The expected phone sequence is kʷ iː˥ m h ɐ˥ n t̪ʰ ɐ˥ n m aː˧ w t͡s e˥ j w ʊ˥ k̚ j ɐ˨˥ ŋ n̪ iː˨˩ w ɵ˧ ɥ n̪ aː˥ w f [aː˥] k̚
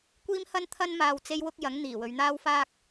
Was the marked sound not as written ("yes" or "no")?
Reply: no